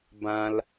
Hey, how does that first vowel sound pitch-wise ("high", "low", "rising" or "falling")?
high